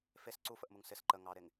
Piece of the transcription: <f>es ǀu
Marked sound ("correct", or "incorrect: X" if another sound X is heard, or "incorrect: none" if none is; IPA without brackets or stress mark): correct